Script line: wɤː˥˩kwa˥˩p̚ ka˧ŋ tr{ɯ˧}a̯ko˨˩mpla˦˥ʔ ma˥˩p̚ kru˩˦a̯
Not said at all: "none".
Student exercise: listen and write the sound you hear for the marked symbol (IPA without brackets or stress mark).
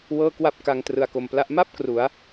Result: ɯ˨˩